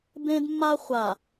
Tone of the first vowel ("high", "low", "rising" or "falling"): high